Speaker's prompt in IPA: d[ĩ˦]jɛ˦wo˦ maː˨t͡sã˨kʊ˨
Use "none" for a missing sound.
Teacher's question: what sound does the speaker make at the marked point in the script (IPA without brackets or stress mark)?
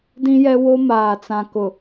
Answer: ĩ˦